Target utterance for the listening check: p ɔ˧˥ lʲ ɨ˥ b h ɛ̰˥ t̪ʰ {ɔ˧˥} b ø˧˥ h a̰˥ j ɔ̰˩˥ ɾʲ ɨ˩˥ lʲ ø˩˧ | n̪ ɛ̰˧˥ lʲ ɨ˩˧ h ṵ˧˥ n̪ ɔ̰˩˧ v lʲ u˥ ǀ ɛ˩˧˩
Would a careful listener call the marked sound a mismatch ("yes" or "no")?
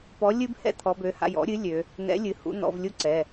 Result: no